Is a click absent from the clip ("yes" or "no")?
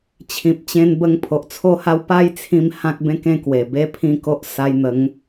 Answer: yes